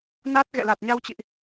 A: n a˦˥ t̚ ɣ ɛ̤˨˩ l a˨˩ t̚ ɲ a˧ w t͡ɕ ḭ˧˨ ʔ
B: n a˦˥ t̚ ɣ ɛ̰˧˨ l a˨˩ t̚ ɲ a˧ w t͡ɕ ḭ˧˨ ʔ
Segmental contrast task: B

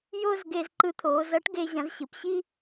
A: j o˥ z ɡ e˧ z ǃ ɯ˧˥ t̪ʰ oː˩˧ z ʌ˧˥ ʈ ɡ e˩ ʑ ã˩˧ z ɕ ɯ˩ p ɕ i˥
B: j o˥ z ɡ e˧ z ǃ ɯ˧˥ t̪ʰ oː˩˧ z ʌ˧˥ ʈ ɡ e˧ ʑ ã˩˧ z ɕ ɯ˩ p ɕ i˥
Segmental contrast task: B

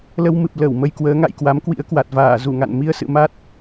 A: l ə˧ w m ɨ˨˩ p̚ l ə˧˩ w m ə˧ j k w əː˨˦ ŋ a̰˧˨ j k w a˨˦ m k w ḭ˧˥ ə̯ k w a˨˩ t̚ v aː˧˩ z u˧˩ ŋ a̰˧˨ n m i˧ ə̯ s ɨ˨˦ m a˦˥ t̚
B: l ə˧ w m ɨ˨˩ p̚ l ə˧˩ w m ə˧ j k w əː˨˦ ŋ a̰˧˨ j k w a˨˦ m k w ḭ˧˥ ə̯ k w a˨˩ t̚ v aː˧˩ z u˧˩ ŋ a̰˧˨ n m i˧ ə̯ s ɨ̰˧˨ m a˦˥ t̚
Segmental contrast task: B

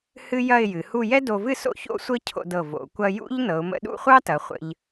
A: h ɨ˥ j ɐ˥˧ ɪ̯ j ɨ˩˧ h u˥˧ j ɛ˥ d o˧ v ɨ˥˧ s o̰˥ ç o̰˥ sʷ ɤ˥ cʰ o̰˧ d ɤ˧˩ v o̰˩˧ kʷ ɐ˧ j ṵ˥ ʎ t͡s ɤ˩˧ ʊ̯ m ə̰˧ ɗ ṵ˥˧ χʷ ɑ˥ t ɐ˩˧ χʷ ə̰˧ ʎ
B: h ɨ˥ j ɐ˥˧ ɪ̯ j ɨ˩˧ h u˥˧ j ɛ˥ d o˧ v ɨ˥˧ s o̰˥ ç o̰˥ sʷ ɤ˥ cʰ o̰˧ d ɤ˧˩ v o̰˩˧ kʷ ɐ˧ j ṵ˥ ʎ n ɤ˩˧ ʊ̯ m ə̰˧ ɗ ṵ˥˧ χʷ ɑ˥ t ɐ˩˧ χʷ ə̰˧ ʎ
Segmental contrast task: B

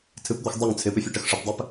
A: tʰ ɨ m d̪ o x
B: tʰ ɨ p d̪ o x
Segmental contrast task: B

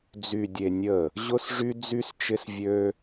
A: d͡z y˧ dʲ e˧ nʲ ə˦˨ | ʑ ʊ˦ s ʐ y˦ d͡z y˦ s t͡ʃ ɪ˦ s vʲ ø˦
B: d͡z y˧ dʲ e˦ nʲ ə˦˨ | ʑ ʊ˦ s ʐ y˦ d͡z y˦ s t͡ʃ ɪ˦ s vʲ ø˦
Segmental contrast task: A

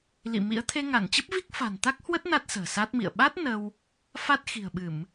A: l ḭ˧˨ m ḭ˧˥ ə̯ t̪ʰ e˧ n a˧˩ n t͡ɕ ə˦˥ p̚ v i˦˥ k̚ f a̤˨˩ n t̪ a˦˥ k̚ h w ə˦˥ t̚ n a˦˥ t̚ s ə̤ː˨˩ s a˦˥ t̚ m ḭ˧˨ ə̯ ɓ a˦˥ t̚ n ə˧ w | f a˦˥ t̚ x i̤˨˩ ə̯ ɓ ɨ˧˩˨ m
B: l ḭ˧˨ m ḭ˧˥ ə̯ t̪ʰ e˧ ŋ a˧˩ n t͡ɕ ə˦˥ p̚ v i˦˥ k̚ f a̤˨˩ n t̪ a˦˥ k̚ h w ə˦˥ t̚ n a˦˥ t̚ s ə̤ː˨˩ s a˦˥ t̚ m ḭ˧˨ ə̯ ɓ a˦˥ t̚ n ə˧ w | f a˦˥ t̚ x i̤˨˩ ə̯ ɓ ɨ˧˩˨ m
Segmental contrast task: B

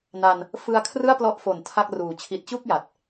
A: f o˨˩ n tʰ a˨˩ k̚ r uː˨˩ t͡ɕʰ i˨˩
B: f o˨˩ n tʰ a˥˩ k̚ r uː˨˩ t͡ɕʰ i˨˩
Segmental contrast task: B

